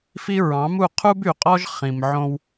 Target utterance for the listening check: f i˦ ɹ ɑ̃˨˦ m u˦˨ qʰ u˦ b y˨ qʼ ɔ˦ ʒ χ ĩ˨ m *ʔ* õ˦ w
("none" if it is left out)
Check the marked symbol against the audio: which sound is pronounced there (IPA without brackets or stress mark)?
ʕ